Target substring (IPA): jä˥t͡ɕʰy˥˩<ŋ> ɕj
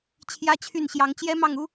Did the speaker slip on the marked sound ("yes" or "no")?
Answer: yes